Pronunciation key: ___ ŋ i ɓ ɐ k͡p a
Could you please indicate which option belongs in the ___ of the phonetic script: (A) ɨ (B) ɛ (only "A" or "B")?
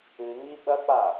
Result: A